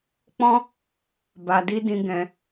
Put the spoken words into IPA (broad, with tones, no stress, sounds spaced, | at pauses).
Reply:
k͡p ɔ̃˦ | b a˧ d i˦ d ĩ˧ ɡ ɛ̃˧